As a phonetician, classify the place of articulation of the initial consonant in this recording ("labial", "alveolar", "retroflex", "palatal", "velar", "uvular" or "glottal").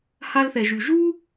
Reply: glottal